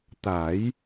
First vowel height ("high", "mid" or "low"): low